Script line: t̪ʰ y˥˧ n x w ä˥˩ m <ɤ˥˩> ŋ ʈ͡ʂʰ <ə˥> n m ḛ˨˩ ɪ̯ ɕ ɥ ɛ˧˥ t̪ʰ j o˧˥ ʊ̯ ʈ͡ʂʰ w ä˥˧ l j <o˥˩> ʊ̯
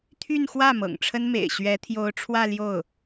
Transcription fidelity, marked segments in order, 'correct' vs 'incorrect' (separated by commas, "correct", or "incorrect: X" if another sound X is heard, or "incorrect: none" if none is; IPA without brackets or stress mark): incorrect: ɤ̰˨˩, correct, correct